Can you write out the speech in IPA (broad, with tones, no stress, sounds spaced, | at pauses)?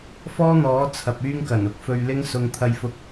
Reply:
f ɔː˥ n̪ ɔː˨˥ t͡sʰ ɐ˨ p̚ yː˥ ŋ k ɐ˨˩ n ʊ˧ k̚ f ɵ˧ ɥ l ɪ˥ ŋ s ʊ˧ ŋ t̪ʰ ɐ˧ j f ʊ˧ k̚